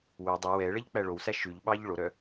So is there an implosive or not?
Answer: yes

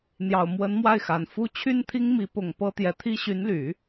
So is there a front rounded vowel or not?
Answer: yes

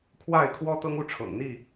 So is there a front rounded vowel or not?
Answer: no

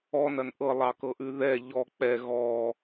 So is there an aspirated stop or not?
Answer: no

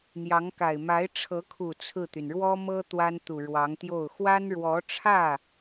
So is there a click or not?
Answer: no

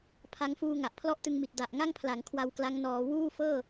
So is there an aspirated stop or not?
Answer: yes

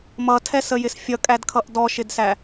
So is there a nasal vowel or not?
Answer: no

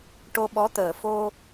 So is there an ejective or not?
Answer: no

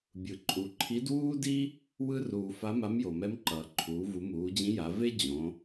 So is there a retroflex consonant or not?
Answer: no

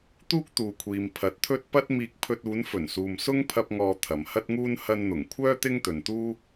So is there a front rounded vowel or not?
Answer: yes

